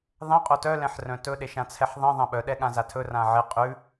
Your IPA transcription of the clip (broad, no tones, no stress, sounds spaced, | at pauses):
ðˤ ɛ̃ qʼ o t œ l ɛ̃ ħ r œ̃ t ɵ ɗ e ʃ ã t͡sʰ ɛ ħ ðˤ ẽ ðˤ ã ɓ œ ɗ ɛ ɠ ã z a tʰ ɵ r ã ʕ e qʼ ʉ